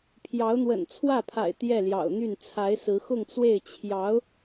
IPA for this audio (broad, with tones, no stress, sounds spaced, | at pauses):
pʰ j ɑ˧˥ ʊ̯ n̪ w ə̰˨˩ n t͡sʰ w ä˥˩ pʰ a̰˨˩ ɪ̯ t̪ j ɛ˥˩ l j ɑ̰˨˩ ʊ̯ n̪ y˥˩ n t͡sʰ a˧˥ ɪ̯ s ɹ̩˧˥ x ʊ˥˧ ŋ t͡s w e˥˩ ɪ̯ t͡ɕʰ j ɑ˧˥ ʊ̯